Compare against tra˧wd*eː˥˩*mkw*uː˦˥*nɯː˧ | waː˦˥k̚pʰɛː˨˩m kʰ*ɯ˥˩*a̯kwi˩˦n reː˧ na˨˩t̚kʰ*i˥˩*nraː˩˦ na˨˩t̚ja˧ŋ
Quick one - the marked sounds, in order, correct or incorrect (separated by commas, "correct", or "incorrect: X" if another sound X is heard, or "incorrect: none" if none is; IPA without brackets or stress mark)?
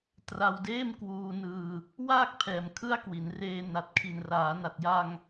correct, incorrect: uː˧, correct, incorrect: i˨˩